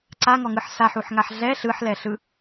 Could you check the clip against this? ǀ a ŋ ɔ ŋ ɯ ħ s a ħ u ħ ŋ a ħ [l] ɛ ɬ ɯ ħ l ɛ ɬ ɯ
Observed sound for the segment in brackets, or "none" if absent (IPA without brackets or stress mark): ɮ